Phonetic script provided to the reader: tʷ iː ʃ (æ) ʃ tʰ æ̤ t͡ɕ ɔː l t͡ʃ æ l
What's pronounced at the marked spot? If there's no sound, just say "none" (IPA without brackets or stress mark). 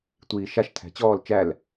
a